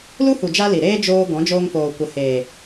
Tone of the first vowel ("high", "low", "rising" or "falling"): high